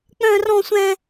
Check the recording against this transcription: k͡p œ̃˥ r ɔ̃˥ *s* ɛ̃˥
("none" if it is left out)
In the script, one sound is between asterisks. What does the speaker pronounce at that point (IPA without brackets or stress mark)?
sʷ